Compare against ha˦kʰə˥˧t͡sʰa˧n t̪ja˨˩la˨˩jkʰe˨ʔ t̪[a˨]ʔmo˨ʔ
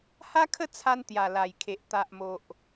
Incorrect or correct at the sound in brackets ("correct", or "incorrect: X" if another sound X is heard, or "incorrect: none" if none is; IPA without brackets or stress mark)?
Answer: correct